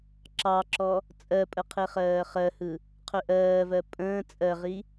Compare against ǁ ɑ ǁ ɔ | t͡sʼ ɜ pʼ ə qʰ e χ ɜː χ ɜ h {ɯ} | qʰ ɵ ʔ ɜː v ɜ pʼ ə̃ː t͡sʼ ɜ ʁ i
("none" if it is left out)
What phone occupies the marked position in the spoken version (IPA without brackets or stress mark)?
ɯ